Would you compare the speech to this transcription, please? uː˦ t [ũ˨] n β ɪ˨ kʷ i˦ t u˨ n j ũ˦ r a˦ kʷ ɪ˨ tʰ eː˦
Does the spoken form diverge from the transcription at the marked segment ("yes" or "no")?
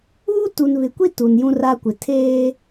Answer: yes